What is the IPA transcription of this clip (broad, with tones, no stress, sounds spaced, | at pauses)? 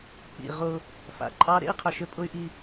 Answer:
k͡p ḭ˨ ʁ ʊ˦ | f a̰˨ ǃʼ ɑ˦ ɾ ḛ˦ i̯ qʰ ʏ˨ ʃ ʏ˦ pʼ ʊ˦ y̯ ʔ i˦